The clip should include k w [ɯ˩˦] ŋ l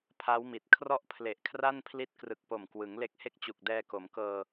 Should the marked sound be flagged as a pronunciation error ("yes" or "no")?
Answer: no